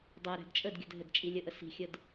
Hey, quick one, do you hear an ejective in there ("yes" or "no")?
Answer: yes